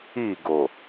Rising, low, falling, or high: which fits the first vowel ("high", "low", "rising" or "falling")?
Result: falling